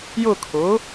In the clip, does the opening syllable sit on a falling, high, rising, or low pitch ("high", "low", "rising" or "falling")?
falling